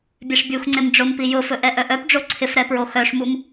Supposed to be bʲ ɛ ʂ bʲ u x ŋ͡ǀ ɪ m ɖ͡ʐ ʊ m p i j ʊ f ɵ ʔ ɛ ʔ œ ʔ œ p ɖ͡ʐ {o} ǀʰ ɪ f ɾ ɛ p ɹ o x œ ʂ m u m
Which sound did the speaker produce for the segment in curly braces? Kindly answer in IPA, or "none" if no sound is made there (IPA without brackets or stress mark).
o